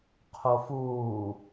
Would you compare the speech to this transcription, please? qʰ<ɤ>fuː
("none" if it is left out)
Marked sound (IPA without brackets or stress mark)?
o